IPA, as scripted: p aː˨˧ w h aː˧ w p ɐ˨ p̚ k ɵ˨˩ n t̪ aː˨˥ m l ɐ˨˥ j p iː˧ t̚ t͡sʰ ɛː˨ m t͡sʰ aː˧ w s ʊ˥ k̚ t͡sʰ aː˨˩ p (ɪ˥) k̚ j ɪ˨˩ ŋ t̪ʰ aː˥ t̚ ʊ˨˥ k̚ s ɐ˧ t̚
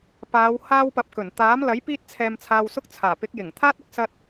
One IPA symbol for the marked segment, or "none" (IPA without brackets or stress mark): ɪ˨˥